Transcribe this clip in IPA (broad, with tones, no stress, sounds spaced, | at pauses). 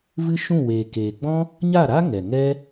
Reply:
v ɨ˦ ʃ ũ˦˨ w eː˨ k eː˨ ɡ͡b ɔ̃˦ | ɲ a˦˨ ɾ a˦ ŋ ɛ˨ ŋ ɛ˦